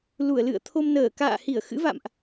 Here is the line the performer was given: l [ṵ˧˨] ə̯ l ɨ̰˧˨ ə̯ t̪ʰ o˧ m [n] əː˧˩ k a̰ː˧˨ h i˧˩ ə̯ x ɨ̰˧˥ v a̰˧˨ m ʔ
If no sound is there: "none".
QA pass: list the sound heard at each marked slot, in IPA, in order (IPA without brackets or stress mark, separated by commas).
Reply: u˧˩, n